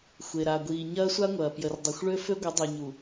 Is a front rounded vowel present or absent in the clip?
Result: present